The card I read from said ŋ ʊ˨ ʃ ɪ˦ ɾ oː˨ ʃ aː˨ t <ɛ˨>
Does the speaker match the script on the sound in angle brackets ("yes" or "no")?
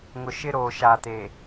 no